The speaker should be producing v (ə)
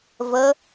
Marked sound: correct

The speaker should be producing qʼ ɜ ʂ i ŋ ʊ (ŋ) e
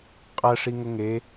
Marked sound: correct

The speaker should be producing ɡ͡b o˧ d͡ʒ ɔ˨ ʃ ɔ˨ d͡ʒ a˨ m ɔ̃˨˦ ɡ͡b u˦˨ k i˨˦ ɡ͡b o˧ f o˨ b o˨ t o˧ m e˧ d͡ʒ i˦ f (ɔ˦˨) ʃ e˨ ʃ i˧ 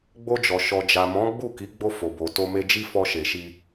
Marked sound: incorrect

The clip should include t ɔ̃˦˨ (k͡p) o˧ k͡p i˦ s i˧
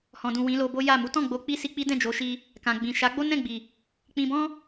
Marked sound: incorrect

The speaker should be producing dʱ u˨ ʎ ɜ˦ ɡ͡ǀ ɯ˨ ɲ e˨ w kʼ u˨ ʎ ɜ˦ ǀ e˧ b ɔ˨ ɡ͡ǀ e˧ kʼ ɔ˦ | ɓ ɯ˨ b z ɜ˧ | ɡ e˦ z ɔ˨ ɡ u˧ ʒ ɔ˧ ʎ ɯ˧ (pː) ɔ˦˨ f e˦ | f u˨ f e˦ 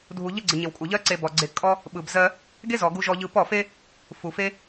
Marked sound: incorrect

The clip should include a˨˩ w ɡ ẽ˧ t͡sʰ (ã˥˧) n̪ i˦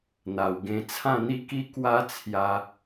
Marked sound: correct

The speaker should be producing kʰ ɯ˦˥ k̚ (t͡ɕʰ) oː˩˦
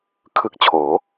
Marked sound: correct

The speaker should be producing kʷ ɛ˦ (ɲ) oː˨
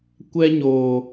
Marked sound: correct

